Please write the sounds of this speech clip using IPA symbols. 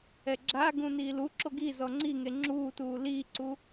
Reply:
ɛɡ͡ǁaɡũ niːluǁo ɡi zɔŋ͡ǀiŋe ŋ͡ǁuːtuː liːǀu

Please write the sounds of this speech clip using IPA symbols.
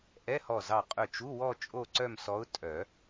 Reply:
ʔɛ˧˥˧hɔ˧˩zɑ˧˩ qʼœ˧˩t͡ʃu˧˥˧wɔ˥˧ t͡ʃʼo˥˧ǀœ˥˧msɔ˧˥ʊ̯ tʼœ˨˩˦

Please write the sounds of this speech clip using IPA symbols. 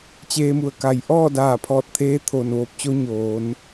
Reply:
t͡ɕeː˧mu˧˩ə̯ka˧˩j ʔɔː˥˨daː˧˩pʰɔː˧˩t̚t̪ʰeː˧ t̪ʰo˧˩nʋoː˧p̚t͡ɕo˧˥ ɲoː˩˧n

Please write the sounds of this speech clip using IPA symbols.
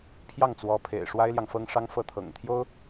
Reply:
pʰjɑ˥˩ŋt͡swɔ˧˥pʰḛ˨˩ɪ̯ ʂwa˥ɪ̯ljɑ˨ŋfɤ˥ŋ ʂɑ˥ŋfɤ˥˩t̪ʰɤ̰˨˩ŋt̪ʰjo˥ʊ̯

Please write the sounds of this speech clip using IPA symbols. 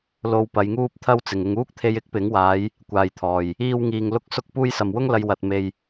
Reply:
lo˧w pɐ˨˧jŋuː˥p̚t̪ʰɐ˥w t͡sɪ˨˩ŋɪ˨ŋuː˥k̚t̪ʰe˧j ɪ˥k̚pɪ˨˥ŋwaː˨˧j | kʷaː˨jt̪ʰɔː˨˩j | iː˧wŋiː˨ŋ lʊ˥k̚sʊ˥k̚puː˥j sɐ˨mwʊ˥ŋlɐ˧j wɐ˧t̚me˧j

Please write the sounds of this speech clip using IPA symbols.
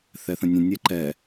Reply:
θɛθə̃nʲə̃ nʲɛǃɛ

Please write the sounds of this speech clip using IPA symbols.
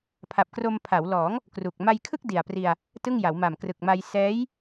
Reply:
pʰa˨˩p̚kro˧mpʰa˩˦wlɔː˩˦ŋ | kru˨˩k̚ ma˧jkʰɯ˥˩k̚ di˨˩a̯pri˧a̯ | tɯ˥˩ŋja˩˦w ma˨˩mkrɯ˨˩k̚ma˧j sɛː˦˥j

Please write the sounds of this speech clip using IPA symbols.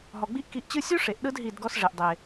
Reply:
ɦɔ˨ɡ͡bi˦ʔki˧ʔt͡ɕɯ˦ sʲu˦ʂe˨ʔɗɯ˧d ɦi˦˨dɡɔ˦sʐe˨ʔdˤe˨

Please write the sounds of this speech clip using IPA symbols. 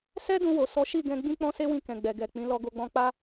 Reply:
sɛ˦dũ˧wo˨ sɔ˨˦ʃi˦˨ɡɛ̃˧ ɡ͡bĩ˦k͡pɔ̃˦ se˦wĩ˧ kɛ̃˨ɡ͡bɛ˨ɡɛ˨k͡pĩ˨˦ lɔ˧ ɡo˧ɡ͡bɔ̃˧k͡pa˦

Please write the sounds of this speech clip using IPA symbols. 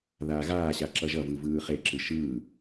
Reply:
ðaːɣaːɕa ǁʌʒʌvɯ vɯːχeǁɯ ʃɯː

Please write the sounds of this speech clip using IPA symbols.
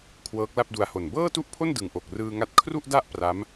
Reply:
kʰwɤː˦˥k̚la˥˩p̚du˧a̯ho˨˩n bɤː˥˩tu˥˩ʔpʰo˥˩n dɯ˨˩ŋʔo˨˩k̚rɯː˧ ŋa˥˩t̚ kʰru˥˩ʔda˥˩ʔ pra˦˥m

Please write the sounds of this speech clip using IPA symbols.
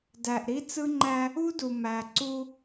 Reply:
dæ˨ʔɾi˦ t͡sɯ˦ŋ͡ǃæ˦ | u˦du˨ mæ˨ǀu˦

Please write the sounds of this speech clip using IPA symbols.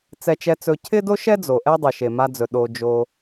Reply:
t͡sɛ˧t͡ʃɛ˧t͡sɵ˧ cʰɪ˦do˦ʃɛ˦ d͡zo˨ʔɛ˦ dˤe˨ʃe˨ma˧d͡zɵ˨ ɗo˧d͡ʒo˧

